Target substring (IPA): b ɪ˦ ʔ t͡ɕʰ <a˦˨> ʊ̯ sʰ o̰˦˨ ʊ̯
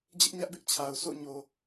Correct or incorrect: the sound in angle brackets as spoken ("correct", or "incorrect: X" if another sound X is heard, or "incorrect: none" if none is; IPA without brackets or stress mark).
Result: incorrect: a˨